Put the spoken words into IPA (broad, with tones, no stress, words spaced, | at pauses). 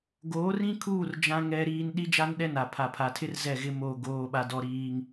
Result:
ɡoː˨˦rĩ˦kʰuː˦˨r d͡ʒã˦ŋɛ˦ɾiː˦n ɗi˦d͡ʒa˦nɗɛ˦na˨ pʰa˨pʰa˨tʰɪ˦r zɛ˦˨ɣɪ˦moː˦˨ ɡoː˦ɓa˦dɔ˦ɾiː˦ŋ